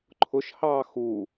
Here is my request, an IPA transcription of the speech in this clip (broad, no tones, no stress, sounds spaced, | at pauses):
ǃʰ ʊ ʃ h ɑː x u